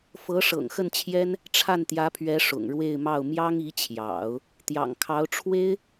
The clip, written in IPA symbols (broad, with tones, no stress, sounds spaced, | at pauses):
f ɤ˧˥ ʂ ɤ̰˨˩ ŋ x ə˥˩ n t͡ɕʰ j ɛ˥ n | ʈ͡ʂʰ a˥˩ n t̪ j ä˧˥ pʰ ɥ ɛ˧˥ ʂ ʊ̰˨˩ ŋ ɻ w e˥˧ ɪ̯ m ɑ˥˩ ʊ̯ m j ɑ˥ ŋ i˧˥ t͡ɕʰ j ɑ̰˨˩˦ ʊ̯ | t̪ j ɑ̰˨˩ ŋ kʰ ɑ˧˥ ʊ̯ ʈ͡ʂʰ w e˥ ɪ̯